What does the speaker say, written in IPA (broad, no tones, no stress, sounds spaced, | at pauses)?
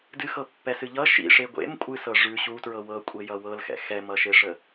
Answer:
d ɨ x ɤ pː ɛ s ɨ ʎ ʌ ʃ ḭ ʂ e ɡʷ ḛ m kʷʼ ɨ s ɤ ʐ ʉ ɕ u t ɹ ɤ w ɤ kʷʼ e j ʌ w ɤ l x ɛ̰ x ɛ m ʌ ʃ e ʂ ə